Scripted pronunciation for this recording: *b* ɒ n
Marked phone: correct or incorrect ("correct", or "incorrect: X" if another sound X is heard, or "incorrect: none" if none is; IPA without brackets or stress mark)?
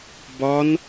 correct